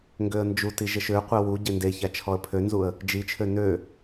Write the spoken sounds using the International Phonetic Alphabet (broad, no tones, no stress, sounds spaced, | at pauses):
ŋ ɡ ø ə̯ n d͡ʒ u t i ʒ ə ʃ ø qʷ ɛ w u ɟ e n d e ç a t͡ʃʰ ɔ ə̯ pʰ ø n z u ə̯ | d͡ʒ i t͡ʃʰ ø n ø